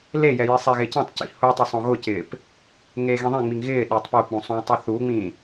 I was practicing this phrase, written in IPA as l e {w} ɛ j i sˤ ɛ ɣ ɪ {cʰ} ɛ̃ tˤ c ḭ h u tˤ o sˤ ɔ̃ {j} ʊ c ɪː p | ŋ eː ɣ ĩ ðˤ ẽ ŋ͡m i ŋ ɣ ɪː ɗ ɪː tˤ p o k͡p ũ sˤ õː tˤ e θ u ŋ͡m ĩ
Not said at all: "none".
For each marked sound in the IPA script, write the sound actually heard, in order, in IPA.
j, c, ɣ

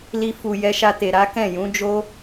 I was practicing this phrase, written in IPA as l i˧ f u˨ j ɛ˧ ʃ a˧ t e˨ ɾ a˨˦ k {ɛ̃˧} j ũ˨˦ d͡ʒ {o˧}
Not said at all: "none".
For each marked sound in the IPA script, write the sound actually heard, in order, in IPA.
ɛ̃˦˨, o˦

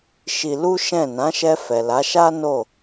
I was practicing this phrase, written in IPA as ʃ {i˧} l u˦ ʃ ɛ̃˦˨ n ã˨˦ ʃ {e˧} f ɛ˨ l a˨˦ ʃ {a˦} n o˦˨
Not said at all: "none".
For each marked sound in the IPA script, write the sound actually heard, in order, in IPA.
i˧, ɛ˧, a˦

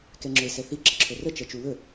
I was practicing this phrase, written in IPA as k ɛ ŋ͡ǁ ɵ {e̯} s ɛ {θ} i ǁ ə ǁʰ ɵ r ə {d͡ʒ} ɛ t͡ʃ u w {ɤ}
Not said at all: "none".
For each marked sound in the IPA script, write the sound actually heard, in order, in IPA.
e̯, θ, t͡ʃ, ɵ

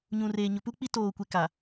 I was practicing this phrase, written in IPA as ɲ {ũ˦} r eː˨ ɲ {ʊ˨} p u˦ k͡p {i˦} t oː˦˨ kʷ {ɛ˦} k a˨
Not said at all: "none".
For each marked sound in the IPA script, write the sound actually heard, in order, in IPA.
ũ˨, ʊ˨, i˦, e˦

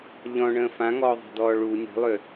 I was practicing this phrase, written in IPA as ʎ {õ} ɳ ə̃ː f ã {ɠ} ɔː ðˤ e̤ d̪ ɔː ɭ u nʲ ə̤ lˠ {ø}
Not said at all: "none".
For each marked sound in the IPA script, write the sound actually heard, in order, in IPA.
ɔ̃, ŋ, ø

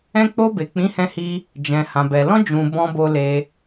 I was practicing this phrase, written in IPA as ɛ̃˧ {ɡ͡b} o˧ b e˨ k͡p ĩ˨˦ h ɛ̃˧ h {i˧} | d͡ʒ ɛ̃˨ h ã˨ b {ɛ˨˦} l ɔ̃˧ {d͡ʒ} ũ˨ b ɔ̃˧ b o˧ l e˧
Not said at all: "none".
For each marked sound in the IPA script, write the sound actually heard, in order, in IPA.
k͡p, i˧, ɛ˨, d͡ʒ

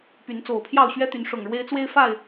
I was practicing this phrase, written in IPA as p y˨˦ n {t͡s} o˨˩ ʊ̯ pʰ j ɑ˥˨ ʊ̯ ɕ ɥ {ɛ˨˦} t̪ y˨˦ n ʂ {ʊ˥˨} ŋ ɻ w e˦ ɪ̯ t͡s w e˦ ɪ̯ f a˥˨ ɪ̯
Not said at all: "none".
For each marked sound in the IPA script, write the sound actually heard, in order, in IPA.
t͡s, ɛ˦, ʊ˨˩

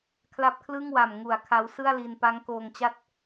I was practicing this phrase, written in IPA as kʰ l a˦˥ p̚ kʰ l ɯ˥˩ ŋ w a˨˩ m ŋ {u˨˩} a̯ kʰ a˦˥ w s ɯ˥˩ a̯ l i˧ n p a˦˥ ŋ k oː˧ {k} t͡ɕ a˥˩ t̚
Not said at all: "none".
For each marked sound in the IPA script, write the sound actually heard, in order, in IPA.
u˨˩, ŋ

